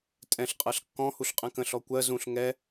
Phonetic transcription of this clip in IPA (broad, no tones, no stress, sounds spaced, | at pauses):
tʼ ɛ̃ ɬ qʼ ɜ ɬ kː ɔ̃ h u ɬ qʼ ɛ̃ k ə̃ ɬ ɔ kʷ ɜ z ũ ɬ ŋ ɛ